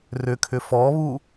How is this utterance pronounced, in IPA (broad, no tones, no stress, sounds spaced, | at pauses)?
r ʏ kʰ ʏ f ɔ β u